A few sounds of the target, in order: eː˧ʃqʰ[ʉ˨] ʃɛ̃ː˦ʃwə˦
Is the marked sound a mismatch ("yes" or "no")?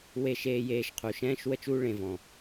yes